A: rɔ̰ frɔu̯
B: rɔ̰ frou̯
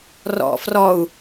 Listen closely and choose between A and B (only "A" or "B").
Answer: A